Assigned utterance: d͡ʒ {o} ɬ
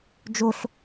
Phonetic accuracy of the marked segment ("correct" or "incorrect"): correct